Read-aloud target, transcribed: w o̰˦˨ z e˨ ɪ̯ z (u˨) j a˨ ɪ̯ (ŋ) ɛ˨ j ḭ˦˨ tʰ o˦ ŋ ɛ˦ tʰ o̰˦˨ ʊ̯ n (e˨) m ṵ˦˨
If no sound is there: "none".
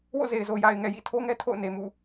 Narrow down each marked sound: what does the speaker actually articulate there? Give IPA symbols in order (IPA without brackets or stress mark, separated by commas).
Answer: o˨, ŋ, e˨